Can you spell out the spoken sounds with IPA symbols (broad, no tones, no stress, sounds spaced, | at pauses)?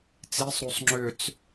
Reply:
t͡s i sˤ ɾ u sˤ ŋ͡ǁ ʏ t͡s